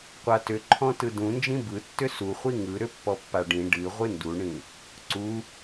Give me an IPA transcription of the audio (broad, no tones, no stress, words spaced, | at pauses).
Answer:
qʷatʏǃʰɔ̃ tɯdũnd͡ʒĩ bɯtːʏ suχʷi ŋɯ ɾʏpːɔpːaɖĩ ɖɨ ʁʷɨnduɳĩ | ǀu